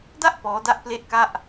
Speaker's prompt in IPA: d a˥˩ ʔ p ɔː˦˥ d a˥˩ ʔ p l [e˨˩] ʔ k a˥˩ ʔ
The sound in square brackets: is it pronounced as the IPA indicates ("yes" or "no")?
no